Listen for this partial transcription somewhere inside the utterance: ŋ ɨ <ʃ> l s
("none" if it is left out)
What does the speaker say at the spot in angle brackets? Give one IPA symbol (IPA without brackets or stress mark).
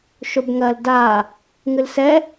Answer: none